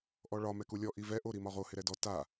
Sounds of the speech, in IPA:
ʔ ɔ ɭ ɒ m ɛ k u lʲ ɔ ʔ i v ɛ ʔ o ɾ i m ɒ ʁ o h ɪ ɾ ɛ d ɔ t a

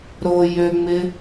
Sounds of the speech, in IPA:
ɾ o j ø ŋ͡m ɪ

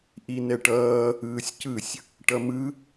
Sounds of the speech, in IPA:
ʔ i n ɛ ʈ ʌː | ɯː sʲ c ɯ sʲ | ʈ ʌ m ɯ

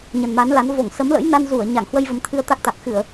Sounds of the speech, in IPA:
ɲ ə˨˩ n m a˨˦ n l a˨˦ n v o˧˩ ŋ s ə˨˦ m l ə̰˧˥ j n a˧ n z u˧˩ ə̯ ɲ a˧˩ ŋ h w ə˧ j v ə˨˦ m t̪ʰ ɨ˧ ə̯ t̪ a˦˥ k̚ t̪ a˨˩ k̚ x ɨ˧˩˨ ə̯

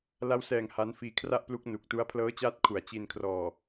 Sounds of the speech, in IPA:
l a˦˥ w s ɛː˨˩ ŋ h a˦˥ n f iː˦˥ kʰ r a˥˩ ʔ p l u˦˥ k̚ n u˨˩ k̚ t u˦˥ a̯ pʰ l ɤː˦˥ t͡ɕ aː˦˥ t̚ kʰ u˩˦ a̯ t͡ɕ i˧ n kʰ r ɔː˨˩

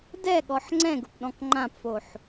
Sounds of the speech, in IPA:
d ɛ ɠ ɔ ħ ŋ͡ǀ ɛ̃ ɡ ʊ p ɗ ɔ̃ k ŋ͡ǃ ã p f o ħ

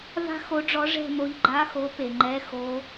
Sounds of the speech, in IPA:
v a̤˥˧ x o˧˥ ɖ͡ʐ ɔ˧˥ ʐ ɛ̤˥˧ m o˧˥ ʎ ɡ͡ǃ a˧˥˧ x o˧˥ p e˩ ŋ͡ǃ ɛ˧˥˧ x o˧˥

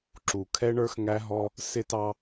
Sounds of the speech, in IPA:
ǁ u˨ kʰ ɛ˦ ɳ ə˞˦ x ŋ æ˦ ɦ ɔ˦ | s ɪ˦ t ɑ˦

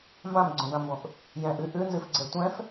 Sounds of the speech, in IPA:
m b ã m ɡ͡ǀ õ d ã m b õ ʔ | j ɛ̃ ʔ ɨ ʔ ʉ n z ɨ f ɡ͡ǀ ɛ tʷ ɛ̃ f

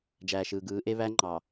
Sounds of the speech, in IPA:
d͡ʒ æː˨ ʃ ɯː˨ ɡ ɯː˨˦ ʔ e˦ β æ˦ ŋ͡ǃ ɑ˨

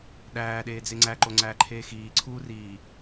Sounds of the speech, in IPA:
ɗ æː ɗ eː d͡z e ŋ͡ǀ æ ǃ o ŋ͡ǀ æː ǃʰ eː x iː ǀʰ uː r iː

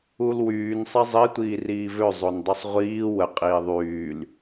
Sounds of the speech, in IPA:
u l w yː n sˤ ɛ zˤ i tʷ iː r iː v ø zˤ o n dˤ u sˤ ʁʷ iː w ə qʼ iː ðˤ yː l

